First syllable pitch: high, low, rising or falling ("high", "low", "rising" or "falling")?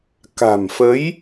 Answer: low